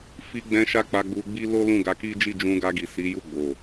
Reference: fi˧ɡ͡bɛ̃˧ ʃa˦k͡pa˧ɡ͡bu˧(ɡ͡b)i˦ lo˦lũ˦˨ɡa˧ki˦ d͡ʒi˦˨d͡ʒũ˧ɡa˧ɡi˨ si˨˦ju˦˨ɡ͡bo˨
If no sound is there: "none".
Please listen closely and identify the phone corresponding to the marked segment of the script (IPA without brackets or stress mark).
ɡ͡b